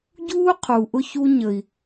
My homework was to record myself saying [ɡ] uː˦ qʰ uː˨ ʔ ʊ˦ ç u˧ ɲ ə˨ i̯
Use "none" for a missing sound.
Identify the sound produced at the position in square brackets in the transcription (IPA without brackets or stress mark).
ɟ